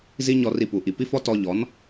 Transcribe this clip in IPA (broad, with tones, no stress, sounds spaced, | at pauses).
z i˦ ɲ ɔ˧ r i˧ p u˨ ʔ i˨ p i˦ f ɔ˦ t ɔ˧ ʎ ɔ˨˦ n